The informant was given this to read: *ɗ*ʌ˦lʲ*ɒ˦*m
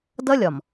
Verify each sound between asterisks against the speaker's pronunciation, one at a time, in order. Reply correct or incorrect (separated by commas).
incorrect, incorrect